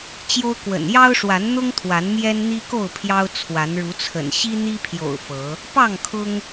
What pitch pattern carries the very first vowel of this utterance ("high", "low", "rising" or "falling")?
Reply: high